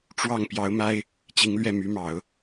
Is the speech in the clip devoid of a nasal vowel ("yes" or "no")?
yes